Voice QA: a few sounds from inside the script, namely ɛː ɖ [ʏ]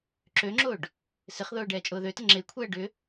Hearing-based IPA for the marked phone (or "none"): ʏ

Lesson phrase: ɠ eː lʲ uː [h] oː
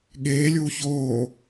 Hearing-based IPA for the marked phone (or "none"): ç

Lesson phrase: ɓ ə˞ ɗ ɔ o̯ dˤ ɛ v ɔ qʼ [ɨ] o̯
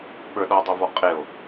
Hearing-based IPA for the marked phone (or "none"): e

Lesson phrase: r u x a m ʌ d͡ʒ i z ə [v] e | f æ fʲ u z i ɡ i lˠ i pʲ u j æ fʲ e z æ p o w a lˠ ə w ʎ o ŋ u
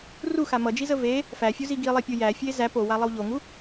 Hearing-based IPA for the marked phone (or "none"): v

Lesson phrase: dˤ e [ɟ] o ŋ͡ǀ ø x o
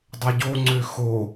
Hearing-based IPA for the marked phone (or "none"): ɟ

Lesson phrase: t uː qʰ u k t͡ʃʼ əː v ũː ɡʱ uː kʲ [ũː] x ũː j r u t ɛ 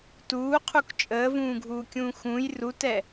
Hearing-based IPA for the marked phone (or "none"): ũː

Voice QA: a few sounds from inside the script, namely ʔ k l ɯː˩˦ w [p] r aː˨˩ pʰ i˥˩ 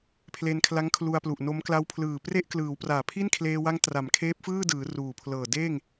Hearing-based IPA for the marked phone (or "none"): p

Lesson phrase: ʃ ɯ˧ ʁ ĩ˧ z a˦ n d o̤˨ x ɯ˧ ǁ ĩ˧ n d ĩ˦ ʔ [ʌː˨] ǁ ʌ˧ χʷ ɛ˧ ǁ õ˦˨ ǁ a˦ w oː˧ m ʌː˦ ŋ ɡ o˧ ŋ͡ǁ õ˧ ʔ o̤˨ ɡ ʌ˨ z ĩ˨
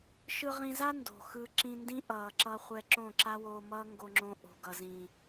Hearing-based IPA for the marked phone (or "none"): ʌː˨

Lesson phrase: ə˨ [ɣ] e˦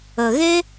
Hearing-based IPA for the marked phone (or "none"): ɣ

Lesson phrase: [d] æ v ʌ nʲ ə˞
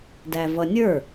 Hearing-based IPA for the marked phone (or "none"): d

